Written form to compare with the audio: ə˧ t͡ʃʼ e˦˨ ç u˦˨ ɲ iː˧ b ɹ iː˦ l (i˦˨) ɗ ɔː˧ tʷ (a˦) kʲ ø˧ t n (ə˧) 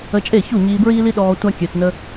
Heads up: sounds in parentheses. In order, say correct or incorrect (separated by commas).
incorrect, correct, correct